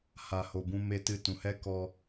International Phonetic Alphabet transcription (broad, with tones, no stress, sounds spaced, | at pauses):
h a˨ h o˨ b ũ˧ m e˧ t ɨ˧ t ũ˨ h ɛ˦ k ɔ˦